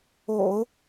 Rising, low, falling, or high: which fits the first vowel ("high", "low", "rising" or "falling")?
low